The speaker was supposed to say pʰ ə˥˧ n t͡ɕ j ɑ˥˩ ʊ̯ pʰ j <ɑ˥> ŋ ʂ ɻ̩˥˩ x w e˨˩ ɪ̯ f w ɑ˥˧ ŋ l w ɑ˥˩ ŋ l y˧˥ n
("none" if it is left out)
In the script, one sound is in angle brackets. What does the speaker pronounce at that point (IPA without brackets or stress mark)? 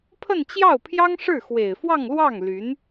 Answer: ɑ˥